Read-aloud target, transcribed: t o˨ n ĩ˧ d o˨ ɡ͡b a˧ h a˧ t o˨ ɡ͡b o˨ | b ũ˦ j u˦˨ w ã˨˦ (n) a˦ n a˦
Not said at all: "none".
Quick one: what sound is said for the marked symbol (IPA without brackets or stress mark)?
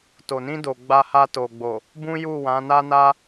n